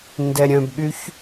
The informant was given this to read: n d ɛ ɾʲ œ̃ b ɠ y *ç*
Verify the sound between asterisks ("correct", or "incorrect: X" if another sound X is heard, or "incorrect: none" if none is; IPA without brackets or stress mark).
correct